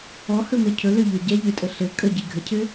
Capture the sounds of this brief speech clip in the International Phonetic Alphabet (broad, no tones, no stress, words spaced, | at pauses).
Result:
ɔhɵmɘ cʰɵløʎø ɟɛʎøtʼə ɬɘ kʼəɟi ɡʱəcʰɘ